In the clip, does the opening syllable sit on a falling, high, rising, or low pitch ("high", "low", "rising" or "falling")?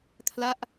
falling